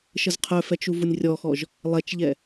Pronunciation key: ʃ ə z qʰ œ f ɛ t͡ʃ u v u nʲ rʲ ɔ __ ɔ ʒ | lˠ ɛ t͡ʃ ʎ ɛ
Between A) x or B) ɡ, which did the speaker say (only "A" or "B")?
A